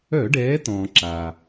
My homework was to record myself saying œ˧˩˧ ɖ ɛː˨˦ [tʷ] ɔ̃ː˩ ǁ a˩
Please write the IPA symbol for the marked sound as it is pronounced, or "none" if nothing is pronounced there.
t̪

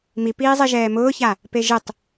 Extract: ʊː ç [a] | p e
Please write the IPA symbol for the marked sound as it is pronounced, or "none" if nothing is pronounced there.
a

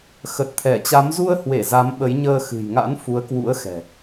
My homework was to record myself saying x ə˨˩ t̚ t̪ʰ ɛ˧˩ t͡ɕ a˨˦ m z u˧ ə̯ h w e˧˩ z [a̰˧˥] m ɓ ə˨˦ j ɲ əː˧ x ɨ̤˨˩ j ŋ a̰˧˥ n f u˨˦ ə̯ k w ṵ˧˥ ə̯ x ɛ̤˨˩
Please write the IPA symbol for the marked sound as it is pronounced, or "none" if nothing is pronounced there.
a˨˦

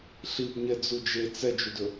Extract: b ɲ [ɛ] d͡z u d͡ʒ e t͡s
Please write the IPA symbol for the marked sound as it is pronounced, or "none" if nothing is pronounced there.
ɛ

